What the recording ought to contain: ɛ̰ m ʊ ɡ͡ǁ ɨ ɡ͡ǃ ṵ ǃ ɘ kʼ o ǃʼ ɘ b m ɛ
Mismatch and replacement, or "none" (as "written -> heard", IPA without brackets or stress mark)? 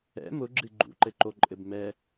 kʼ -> ǃ